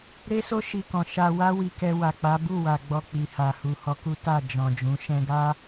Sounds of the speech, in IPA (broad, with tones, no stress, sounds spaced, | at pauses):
ɾ e˦ s o˦ ʃ i˧ k ɔ̃˨ ʃ a˧ w a˦ w i˧ k ɛ˧ w a˨ k͡p a˨˦ b u˦˨ w a˨ ɡ͡b ɔ˧ k͡p i˨ h a˨ h u˨ h ɔ˧ k u˦ t a˦˨ d͡ʒ ɔ̃˨ d͡ʒ ũ˨˦ ʃ ɛ̃˧ ɡ a˦